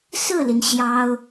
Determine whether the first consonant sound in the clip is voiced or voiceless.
voiceless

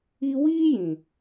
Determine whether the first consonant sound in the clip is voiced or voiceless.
voiced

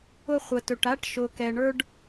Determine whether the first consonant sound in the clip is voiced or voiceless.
voiceless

